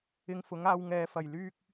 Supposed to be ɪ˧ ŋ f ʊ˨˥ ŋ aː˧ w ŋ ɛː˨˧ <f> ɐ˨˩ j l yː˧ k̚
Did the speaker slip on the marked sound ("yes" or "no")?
no